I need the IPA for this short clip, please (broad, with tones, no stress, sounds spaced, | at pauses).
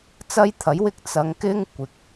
t͡s ɐ˥ j t̪ʰ ɐ˨˥ j w ɪ˥ k̚ t͡s ɐ˨˧ ŋ k ɪ˥ ŋ kʷ ɪ˨ k̚